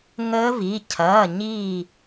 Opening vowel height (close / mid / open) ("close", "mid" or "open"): mid